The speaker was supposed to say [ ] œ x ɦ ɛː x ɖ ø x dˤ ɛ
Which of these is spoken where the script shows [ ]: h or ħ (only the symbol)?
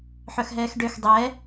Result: ħ